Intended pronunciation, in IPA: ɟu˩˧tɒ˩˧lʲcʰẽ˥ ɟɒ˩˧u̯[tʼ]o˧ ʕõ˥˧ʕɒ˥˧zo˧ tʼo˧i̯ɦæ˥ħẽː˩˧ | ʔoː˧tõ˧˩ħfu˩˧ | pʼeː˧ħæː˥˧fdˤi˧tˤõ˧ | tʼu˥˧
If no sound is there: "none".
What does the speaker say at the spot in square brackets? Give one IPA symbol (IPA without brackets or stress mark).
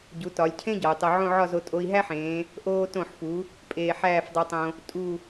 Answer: tˤ